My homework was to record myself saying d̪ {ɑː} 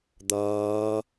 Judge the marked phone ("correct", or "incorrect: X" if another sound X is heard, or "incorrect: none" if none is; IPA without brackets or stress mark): incorrect: ʌː